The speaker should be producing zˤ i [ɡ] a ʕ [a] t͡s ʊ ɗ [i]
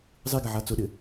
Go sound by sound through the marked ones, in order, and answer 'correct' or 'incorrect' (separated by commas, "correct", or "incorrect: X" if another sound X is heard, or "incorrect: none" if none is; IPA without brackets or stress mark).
correct, correct, incorrect: ɪ